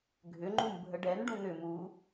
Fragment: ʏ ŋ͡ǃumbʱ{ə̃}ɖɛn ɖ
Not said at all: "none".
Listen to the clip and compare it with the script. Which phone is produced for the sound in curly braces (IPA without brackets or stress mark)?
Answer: ə